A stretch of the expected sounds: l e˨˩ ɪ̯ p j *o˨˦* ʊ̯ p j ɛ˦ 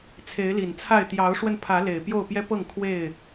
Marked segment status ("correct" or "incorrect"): incorrect